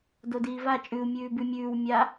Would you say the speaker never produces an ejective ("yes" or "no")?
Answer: no